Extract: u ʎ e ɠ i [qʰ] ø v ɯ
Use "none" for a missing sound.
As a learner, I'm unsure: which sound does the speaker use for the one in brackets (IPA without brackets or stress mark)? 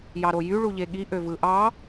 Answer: ʔ